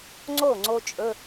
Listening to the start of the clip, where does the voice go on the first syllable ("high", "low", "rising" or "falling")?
falling